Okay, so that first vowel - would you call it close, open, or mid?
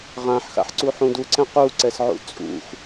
open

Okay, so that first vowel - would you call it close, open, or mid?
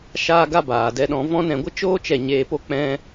open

